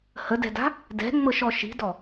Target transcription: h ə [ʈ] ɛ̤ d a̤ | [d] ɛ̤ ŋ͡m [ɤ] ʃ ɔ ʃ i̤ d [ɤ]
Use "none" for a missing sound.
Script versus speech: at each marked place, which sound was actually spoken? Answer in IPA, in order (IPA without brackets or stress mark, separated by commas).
d, d, ɤ, ɔ